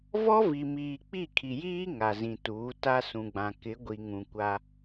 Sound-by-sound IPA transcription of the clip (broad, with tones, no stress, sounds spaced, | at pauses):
v ɔ˦ v i˨ m iː˨ k͡p i˦˨ kʰ i˨ j iː˦ ŋ a˨ z ĩ˨ t uː˨˦ t a˦ s ũ˨ ɡ͡b ã˨ k ɪ˨˦ ɡʷ i˨ ŋ ũ˨ kʷ a˦